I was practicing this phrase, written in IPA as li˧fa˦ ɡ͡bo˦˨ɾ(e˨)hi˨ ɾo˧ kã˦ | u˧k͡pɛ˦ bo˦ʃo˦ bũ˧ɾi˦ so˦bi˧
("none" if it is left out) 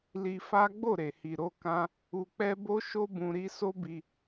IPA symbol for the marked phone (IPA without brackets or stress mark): e˨